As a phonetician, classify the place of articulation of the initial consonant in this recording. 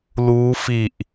alveolar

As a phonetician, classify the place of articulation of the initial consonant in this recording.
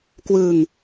velar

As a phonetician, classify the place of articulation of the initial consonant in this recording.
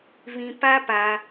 labial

